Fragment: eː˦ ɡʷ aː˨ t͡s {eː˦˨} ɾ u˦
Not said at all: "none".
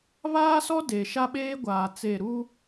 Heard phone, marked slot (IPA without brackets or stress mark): e˦˨